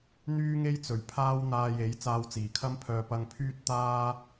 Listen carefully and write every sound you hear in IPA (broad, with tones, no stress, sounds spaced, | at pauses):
n̪ yː˥ ŋ e˥ j t͡s ɵ˨˩ ɥ pʰ aː˥ w n̪ aː˧ j e˨˥ j t͡s aː˧ w t͡s iː˨˩ kʰ ɐ˥ m pʰ œː˧ p ɐ˧ ŋ pʰ yː˥ t̚ t̪ aː˥